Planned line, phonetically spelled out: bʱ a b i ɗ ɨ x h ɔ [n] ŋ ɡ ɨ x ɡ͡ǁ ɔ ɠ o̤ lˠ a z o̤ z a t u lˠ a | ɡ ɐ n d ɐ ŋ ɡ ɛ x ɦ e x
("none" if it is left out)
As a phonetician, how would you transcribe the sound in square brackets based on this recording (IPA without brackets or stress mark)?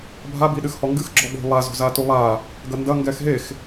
none